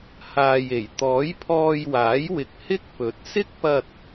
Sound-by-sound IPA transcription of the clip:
h aː˨ j e˨˩ j t̪ ɔː˨˥ j pʰ ɔː˧ j w aː˨˥ j w ɪ˨ k̚ h ɪ˥ k̚ p ɵ˨˥ t̚ s ɪ˥ k̚ p ɐ˧ t̚

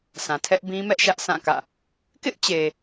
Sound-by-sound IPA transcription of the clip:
s ã˨ tʰ ɛ˦ ʔ b ĩ˦ m ɛ˦ ʔ ʃ ä˦ ʔ sʰ ã˦˨ k ä̰˦˨ | k ɪ˦ ʔ t͡ɕ e˨

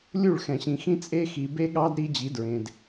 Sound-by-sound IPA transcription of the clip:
lʲ u˦˨ ɭ x ɛ̃˨ ɕ ĩ˨ x ĩ˦ t͡sʼ e˦ x i˨ b e˦ ɠ ɑ˦ d ɾ i˦ d͡ʑ i˨˦ d ɹ ẽ˨ d

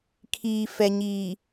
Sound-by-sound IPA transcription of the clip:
kʰ iː˨ f ɛ˨ ɲ iː˨

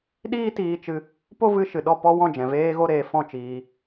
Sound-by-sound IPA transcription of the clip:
ɗ iː˦ t iː˧ t͡ʃ ɨ˧ | p o˦ v ɨ˧ ʃ ɨ˨ ɗ ɔ˦˨ p ɔ˦ w ɔ̃˦˨ d͡ʒ ɛ̃˨ v eː˧ ɣ o˧ ɾ eː˨ f ɔ̃˦˨ t͡ʃ iː˧

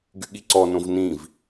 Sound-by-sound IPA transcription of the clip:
ɡ y ɠ i ǀ ɔ n õ v n ĩ v

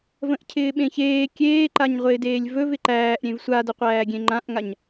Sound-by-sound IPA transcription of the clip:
v ə̃ ʔ cʰ ɪː ɓ ẽ ç eː kʲ eː ǃ a ɲ ʁʷ ɪː d eː lʲ v ɵ v ɪ ǃ æː ʔ ɾʲ ẽ v sʷ a d ə qʷ æː ɡʲ ẽ ŋ͡ǃ ã ʔ ŋ a ɲ

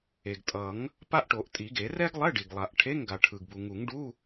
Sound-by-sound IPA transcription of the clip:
e˩ ɡ tʼ ʌ˨˩˦ ŋ | p a˥ ʔ ʈ o˨˩˦ ʔ tʼ i˨˩˦ ɡ e˨˩˦ r ɛ˥ ɡ lˠ ɛ˧˥˧ ɖ i˩ ɡ lˠ a˨˩˦ ʔ ʈʰ e˧˥˧ ŋ ɡ a˩ ʈʰ ɯ˩ ɡ b u˩ ŋ u˨˩˦ ŋ ɖ u˧˥˧

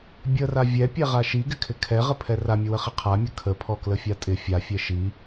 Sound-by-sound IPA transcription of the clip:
bʲ ə r a vʲ ɛ pʲ ɛ ʁ a ʃ i ɡ ɪ kʰ ɪ kʰ ɛ ʁ ə pʰ ɛ r a mʲ ə w ə χ ɪ qʰ a mʲ ə kʰ ə pʰ ɔ k l ə fʲ a tʼ ɪ fʲ a fʲ ɛ ʃ i

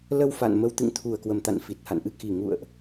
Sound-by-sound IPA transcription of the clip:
l ə˧ w f a̰˧˨ n m ə˧ w t̪ ɨ̰˧˨ ŋ t̪ʰ u˨˩ ə̯ k w ə˨˩ m t̪ a̰˧˨ n f i˨˩ t̚ h a̰˧˨ n ʔ ɨ˧ k i˨˩ ŋ ṵ˧˨ ə̯ ʔ

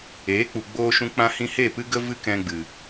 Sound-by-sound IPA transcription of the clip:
eː˨˦ k͡p u˨ ɡ͡b oː˧ ʃ ũ˧ k͡p ã˧ h ĩ˧ h e˦˨ p ɨ˦ ɡ ə˦ v ɨ˦ k ɛ̃˧ ɡ͡b ɨ˨

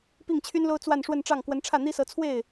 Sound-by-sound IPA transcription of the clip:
p i˥˩ ŋ t͡ɕʰ y˥ n l o˥ ʊ̯ t͡s w a˥˧ n ʂ w ə˥˧ n ʈ͡ʂ ɑ˥˩ ŋ k w ə˧˥ n ʈ͡ʂʰ ä˥˩ n̪ i˥ s ɤ˧˥ t͡sʰ w e˥˩ ɪ̯

